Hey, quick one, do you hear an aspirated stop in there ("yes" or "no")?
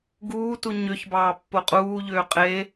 no